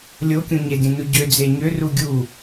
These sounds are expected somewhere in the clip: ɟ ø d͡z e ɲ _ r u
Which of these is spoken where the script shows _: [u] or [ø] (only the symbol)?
ø